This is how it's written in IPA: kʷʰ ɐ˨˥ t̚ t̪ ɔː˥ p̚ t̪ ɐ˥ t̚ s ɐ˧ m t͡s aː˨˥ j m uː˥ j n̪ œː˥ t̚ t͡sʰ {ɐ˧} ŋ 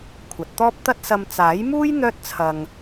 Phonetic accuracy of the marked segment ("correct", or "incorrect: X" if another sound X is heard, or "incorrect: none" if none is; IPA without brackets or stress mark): correct